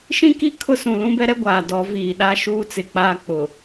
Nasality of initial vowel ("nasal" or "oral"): nasal